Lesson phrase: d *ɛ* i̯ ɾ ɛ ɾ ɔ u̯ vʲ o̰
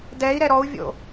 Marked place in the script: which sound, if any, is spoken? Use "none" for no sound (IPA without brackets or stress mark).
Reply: ɛ